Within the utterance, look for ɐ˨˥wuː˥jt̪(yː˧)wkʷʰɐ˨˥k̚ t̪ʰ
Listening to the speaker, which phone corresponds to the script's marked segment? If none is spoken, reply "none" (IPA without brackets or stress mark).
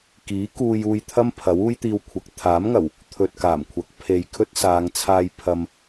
iː˧